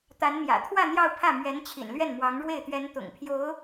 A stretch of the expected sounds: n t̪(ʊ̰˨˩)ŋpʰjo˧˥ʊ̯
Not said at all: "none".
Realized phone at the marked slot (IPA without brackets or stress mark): ʊ̰˨˩